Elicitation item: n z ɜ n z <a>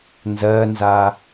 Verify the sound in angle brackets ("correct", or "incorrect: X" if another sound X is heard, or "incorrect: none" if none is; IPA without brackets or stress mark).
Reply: correct